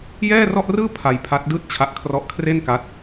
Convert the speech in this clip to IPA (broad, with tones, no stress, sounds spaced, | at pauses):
j ɛː˥˩ r ɔ˥˩ ʔ r ɯː˥˩ pʰ a˧ j pʰ a˦˥ t̚ d ɯː˥˩ t̚ t͡ɕʰ a˦˥ ʔ kʰ r ɔ˦˥ ʔ kʰ r e˥˩ n k a˦˥ t̚